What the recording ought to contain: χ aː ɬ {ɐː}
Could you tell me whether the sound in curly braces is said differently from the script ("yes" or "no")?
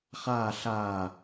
yes